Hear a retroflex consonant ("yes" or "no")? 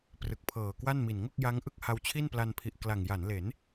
no